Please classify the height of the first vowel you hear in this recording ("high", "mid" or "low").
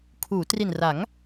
high